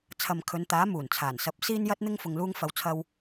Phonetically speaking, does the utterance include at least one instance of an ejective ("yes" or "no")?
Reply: no